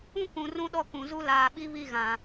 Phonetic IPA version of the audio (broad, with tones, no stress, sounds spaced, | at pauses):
ũ˦ k ũ˨ r ũ˦ ɗ ɔ˦ k ũ˨ z u˦ l aː˨ ɓ i˦ β i˦˨ ɣ ã˨